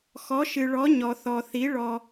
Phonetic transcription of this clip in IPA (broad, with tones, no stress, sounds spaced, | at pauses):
x ɔ˩˥ ʃ ɨ˩ ɭ ɔ˩˥ ɲ ɔ˩ θ ɔ˩ θ i˩˥ ɭ ɔ˩